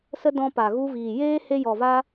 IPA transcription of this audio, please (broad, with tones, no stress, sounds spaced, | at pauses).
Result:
s ə˦ d ɔ̃˧ p a˨ ɣ u˧ v iː˨ j eː˦ h e˧ j ɔ˨ v a˧